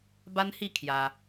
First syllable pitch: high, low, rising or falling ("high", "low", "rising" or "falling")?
high